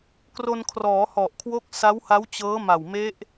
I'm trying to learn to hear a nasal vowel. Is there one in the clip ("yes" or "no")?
no